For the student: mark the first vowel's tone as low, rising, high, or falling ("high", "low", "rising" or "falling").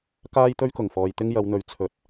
high